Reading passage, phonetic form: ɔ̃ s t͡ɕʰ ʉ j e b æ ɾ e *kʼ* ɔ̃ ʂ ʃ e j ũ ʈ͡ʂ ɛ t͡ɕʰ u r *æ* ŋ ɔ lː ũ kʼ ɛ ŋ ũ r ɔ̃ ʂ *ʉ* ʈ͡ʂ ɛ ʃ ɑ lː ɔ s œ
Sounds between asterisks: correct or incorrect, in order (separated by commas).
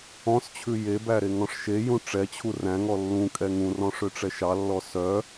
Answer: incorrect, incorrect, incorrect